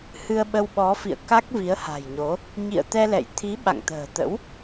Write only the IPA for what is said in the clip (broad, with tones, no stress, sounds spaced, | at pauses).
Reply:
h ɨ˧ ə̯ ɓ ə˧ w ɓ ɔ˨˦ f ḭ˧˨ ə̯ k a˦˥ k̚ v i˨˦ ə̯ h a̤˨˩ j ɲ o˨˦ | ɲ ḭ˧˨ ə̯ t̪ ɛ˧ l ɛ̰˧˨ j t̪ʰ i˨˦ ɓ a̰˧˨ ŋ t̪ ə̤ː˨˩ t̪ ə̰˧˥ w